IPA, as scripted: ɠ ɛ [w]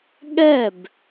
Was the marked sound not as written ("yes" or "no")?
yes